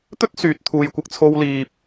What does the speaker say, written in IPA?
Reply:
t̪ɵ˥t̚ syː˨t̚t̪ʰuː˨jkʷɪ˧k̚t͡sʰo˧w liː˨p̚

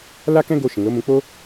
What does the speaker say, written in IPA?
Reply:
la˦kɛ̃˦ ɡo˧ ʃĩ˨lo˨˦mũ˧ k͡po˦

